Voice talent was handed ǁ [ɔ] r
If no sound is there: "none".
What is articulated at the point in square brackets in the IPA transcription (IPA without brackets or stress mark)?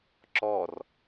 ɔ